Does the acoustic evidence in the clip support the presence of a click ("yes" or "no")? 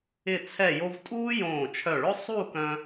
no